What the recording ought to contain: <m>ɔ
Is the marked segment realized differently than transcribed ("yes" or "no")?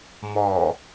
no